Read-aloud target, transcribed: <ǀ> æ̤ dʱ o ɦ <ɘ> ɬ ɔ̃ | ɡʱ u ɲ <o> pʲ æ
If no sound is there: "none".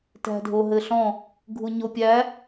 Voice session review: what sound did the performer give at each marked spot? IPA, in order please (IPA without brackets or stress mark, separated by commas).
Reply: t, ɘ, o